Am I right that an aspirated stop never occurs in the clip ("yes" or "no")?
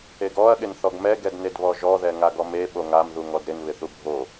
yes